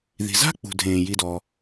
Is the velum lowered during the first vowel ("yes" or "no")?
no